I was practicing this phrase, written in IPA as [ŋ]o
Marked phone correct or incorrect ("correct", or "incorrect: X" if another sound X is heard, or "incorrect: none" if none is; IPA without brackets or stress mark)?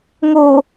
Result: correct